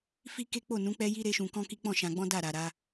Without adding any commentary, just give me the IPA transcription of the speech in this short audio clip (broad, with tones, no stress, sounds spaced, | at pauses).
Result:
f i˦ k e˦ k͡p o˦˨ n ũ˨˦ k͡p ɛ˦ j i˦ ɾ e˦ ʃ ũ˧ k ɔ̃˦ k i˦ k͡p ɔ̃˦˨ ʃ ã˧ ɡ͡b ɔ̃˦ d a˦˨ ɾ a˨ ɾ a˧